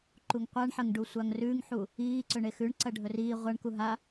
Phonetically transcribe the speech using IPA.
ǃuŋqʷaɳħɐŋɖu sʷaŋrʉŋħu | iːǀɵɳe xʉɳǀɐ ɖʱɵriː ʁʷaɳku ɦa

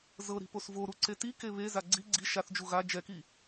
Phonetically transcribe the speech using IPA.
zɤɾi̤pos voɾuǀe tike βeza ɡ͡ǀi ɡ͡ǀi ʃaθd͡ʒu ɣa d͡ʒɛki

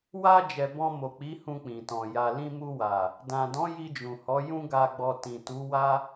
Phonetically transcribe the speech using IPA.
wa˧ d͡ʒɛ˨ bɔ̃˧mo˨k͡pi˨˦ hũ˧k͡pĩ˨tɔ̃˨ ja˨lĩ˧mu˧wa˨ | dã˨dɔ̃˨˦ ji˧d͡ʒũ˨hɔ˨˦ jũ˦ɡa˧ɡ͡bɔ˧ tĩ˨tu˨˦wa˦

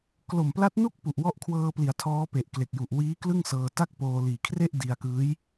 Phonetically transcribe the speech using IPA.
klo˨˩mpla˦˥t̚nu˥˩k̚pu˨˩ʔ wɔ˦˥ʔkʰwɤː˧pli˩˦a̯ tʰɔː˦˥pe˨˩ʔ kle˨˩k̚ju˨˩ʔ wiː˦˥ klɯ˥˩ŋsɤː˧ ta˥˩k̚poː˧ liː˨˩kʰre˥˩ʔ di˧a̯kɯː˦˥j

